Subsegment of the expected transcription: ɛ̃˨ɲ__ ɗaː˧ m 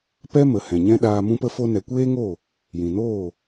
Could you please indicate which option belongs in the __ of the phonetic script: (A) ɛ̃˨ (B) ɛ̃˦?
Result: B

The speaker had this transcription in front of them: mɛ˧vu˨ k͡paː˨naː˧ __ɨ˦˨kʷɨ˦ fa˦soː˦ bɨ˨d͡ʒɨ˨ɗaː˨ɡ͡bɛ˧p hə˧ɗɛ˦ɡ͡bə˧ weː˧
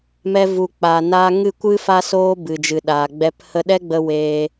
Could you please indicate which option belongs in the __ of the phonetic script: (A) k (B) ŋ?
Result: B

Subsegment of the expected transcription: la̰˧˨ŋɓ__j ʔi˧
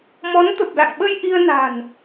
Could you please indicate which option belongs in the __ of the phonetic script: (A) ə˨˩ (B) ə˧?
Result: B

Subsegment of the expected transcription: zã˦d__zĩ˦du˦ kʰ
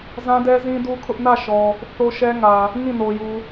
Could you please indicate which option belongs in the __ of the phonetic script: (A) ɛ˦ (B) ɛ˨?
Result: A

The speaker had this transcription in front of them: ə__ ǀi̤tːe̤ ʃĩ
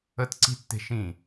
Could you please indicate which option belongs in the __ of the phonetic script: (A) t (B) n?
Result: A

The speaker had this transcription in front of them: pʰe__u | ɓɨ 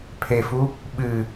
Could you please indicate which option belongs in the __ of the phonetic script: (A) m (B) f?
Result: B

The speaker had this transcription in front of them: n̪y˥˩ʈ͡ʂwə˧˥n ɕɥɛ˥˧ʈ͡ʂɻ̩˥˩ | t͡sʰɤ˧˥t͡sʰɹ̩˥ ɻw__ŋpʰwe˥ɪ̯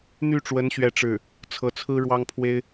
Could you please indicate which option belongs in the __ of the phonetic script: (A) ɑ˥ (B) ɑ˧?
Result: A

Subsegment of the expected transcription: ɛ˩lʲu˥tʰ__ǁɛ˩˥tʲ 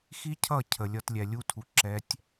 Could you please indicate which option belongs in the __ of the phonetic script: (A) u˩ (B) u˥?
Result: A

